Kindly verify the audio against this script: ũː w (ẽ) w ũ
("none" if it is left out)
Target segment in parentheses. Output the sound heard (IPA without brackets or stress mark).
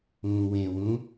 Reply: ẽ